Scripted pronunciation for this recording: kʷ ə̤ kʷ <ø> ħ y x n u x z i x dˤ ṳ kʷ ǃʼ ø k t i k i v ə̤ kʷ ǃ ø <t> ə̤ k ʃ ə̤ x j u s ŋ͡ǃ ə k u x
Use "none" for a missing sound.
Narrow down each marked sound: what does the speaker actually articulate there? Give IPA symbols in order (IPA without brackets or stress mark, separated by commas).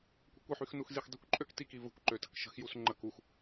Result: ə, t